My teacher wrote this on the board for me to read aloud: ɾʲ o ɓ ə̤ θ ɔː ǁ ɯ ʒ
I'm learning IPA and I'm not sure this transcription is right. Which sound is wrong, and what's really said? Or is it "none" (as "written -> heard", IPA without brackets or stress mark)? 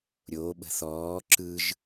none